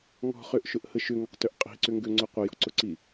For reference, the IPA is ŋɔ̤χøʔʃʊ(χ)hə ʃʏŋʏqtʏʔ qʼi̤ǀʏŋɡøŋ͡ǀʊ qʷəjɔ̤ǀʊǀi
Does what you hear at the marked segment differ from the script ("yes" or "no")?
yes